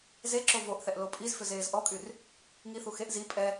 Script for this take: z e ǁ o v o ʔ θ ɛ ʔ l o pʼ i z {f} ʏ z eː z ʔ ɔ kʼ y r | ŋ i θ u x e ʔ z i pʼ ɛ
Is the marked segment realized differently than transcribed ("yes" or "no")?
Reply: no